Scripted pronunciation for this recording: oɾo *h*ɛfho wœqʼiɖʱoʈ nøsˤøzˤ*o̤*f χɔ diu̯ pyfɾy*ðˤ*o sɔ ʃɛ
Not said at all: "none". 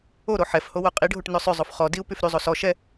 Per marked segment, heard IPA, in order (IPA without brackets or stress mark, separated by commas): ħ, o, zˤ